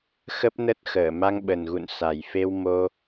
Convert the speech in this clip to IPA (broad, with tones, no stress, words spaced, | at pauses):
xə˦˥p̚nə˦˥t̚xəː˧˩ ma˧ŋɓə˨˩nɣṵ˧˨nsa˨˩j fe˧wmo˧